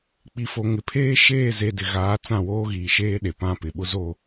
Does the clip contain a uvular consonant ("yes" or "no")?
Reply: no